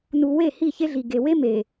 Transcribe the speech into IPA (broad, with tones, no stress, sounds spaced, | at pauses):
n u˨ w e˦˨ h i˦˨ ç e˦ ɮ i˨ ɡ e˨ w e˦ m e˨